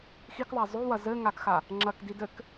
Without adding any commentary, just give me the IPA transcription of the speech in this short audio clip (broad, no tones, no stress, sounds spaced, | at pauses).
x i k ðˤ a zˤ o w ɐ z ɘ ŋ a k x a | ŋ͡ǁ ɐ k d i d ɘ k